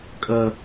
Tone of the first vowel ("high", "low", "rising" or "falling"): low